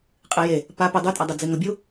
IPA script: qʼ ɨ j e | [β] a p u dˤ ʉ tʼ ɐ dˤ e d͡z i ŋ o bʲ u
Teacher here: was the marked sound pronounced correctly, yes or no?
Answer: no